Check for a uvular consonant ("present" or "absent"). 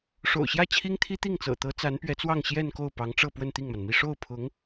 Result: absent